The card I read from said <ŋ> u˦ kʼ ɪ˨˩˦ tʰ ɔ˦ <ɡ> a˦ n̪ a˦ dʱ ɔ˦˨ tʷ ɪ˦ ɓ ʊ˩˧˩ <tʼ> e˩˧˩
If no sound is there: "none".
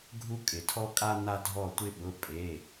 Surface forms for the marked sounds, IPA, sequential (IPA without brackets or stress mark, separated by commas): ɡʱ, kʼ, pʼ